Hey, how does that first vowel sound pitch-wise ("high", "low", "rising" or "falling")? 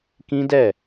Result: high